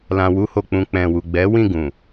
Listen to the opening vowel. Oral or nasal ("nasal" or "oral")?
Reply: nasal